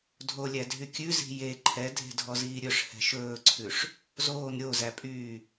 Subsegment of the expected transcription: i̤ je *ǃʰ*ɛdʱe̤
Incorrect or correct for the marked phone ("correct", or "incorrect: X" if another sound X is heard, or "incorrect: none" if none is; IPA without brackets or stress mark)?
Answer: correct